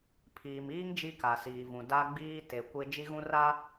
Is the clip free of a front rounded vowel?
yes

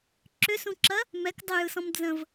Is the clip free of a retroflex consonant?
yes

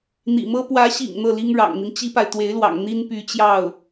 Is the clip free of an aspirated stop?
yes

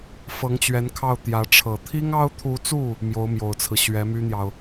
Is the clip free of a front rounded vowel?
no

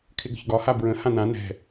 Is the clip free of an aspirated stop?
no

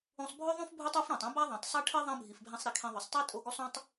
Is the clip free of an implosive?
yes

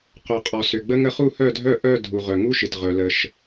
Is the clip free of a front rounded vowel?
no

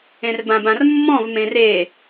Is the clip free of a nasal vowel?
no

